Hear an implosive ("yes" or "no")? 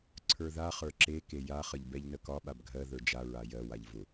yes